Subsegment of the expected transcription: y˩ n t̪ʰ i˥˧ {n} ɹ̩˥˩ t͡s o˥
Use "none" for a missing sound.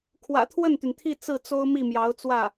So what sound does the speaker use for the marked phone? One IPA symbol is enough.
t͡s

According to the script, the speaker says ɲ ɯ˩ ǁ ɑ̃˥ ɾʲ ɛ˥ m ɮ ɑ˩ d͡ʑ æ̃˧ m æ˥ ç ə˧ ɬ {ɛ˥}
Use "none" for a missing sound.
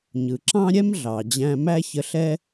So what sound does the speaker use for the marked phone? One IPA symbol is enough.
ɛ˥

